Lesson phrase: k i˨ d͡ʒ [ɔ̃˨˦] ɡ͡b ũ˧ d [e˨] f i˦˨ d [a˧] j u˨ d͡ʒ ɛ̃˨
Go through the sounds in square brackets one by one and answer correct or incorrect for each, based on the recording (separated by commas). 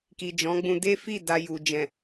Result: correct, incorrect, correct